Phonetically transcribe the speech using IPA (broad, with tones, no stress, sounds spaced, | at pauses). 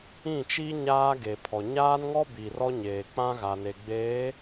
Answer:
ĩ˦˨ t͡ʃ i˦ ɲ aː˦ ɡ e˨ pʰ ɔ˨ ɲ aː˦ n ŋ ɔ˦ b i˨ r ɔ˦ ɲ eː˨ k͡p ã˦ ɣ a˨ n e˨ ɡ͡b eː˨˦